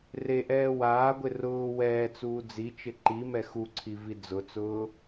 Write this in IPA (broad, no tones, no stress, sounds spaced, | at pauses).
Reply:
r e ʔ ɛː w aː ɡʷ ɪ r ʊː w ɛː t͡s uː d͡z i t͡ʃ ɪ ǃ i m ɛ x u ǀʰ i v i d͡z ʊ t͡s ʊː